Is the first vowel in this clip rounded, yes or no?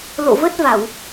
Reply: yes